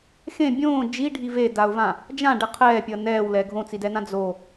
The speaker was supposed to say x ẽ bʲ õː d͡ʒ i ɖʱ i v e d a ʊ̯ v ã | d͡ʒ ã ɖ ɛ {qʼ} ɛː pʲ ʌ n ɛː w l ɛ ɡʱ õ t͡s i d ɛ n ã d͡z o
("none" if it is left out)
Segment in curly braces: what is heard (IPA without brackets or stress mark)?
qʰ